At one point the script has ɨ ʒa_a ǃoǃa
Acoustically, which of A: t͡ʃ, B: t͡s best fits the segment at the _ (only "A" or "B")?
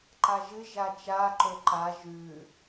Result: A